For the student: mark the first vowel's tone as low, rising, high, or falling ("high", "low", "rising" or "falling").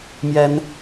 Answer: high